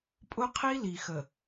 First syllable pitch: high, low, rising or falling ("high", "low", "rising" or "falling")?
high